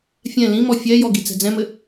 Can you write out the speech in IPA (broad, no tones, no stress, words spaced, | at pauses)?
fʲɛ̃ lĩmɔ fʲɛjɔ ɡit͡sɛ̤d͡zɛ̃mɘ